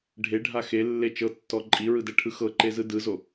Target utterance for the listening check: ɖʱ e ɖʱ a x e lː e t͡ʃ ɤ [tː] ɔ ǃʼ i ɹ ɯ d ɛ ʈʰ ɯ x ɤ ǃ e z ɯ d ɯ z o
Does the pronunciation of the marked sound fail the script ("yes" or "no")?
no